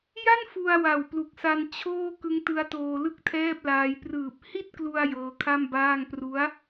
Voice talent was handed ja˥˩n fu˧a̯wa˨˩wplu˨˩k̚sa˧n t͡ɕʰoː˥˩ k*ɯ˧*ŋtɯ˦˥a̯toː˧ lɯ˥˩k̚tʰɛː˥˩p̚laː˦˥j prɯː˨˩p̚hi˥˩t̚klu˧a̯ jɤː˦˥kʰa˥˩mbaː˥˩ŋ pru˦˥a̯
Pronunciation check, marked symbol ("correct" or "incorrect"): incorrect